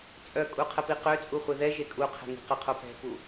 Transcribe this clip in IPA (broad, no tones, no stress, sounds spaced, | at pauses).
t͡sʼ œ kʼ u qʰ ə p i q ø t͡sʼ u χʷ e ð ɛ ʒ e kʼ u qʰ ɛ̤ ŋ i̤ q ə qʰ o p ɛ̤ p u